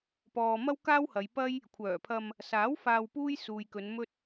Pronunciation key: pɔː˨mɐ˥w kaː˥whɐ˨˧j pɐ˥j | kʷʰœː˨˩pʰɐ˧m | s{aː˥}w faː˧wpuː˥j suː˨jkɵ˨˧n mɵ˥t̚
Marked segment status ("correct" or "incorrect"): incorrect